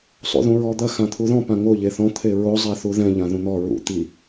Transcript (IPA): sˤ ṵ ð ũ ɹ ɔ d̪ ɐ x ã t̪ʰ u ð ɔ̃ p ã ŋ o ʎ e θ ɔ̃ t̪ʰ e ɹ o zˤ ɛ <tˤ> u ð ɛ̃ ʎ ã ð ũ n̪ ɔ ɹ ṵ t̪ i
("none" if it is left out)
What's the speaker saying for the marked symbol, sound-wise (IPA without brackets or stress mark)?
θ